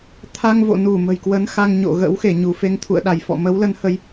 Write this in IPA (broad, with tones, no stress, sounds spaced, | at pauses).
t̪ʰ a˧ ŋ v o̰˧˨ n u˧˩ m ə̤˨˩ j k w ə˨˦ n x a˧ ŋ ɲ o̰˧˨ ɣ ə̰˧˥ w x e˧˩ ɲ u˧˩ f e˧ ŋ t̪ʰ ṵ˧˨ ə̯ ɗ a˧˩ j f ɔ̰˧˨ m ə˨˦ w l ə˨˦ n h ə˨˦ j